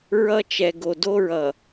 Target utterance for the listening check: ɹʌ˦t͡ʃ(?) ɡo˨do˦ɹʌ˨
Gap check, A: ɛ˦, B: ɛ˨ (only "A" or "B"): B